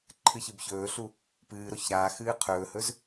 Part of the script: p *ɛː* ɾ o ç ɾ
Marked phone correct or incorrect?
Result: incorrect: ɨː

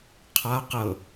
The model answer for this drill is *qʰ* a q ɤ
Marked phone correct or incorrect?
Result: correct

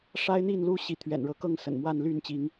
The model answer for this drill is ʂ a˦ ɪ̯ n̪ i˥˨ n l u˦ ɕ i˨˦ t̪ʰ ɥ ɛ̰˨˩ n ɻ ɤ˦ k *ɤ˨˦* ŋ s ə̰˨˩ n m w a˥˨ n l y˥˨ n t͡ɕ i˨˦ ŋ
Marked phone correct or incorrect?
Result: incorrect: ɤ˥˨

